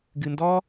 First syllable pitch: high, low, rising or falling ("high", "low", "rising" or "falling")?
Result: low